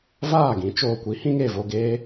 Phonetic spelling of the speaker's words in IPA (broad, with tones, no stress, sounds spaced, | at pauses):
v aː˦˨ ɡ ĩ˨˦ t͡ʃ oː˧ kʷ i˨˦ h ĩ˦ ŋ e˦˨ v o˧ ɡ eː˦